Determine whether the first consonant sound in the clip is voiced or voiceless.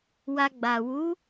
voiced